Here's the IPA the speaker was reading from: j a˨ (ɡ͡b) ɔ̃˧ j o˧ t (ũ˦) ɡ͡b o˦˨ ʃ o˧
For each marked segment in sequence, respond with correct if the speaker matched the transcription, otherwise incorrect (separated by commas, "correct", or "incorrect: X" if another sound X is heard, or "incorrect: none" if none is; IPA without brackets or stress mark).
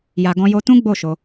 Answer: incorrect: ɡ, correct